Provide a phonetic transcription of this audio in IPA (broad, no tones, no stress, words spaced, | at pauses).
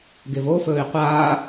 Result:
ɡevofɵːi̯ qʷaː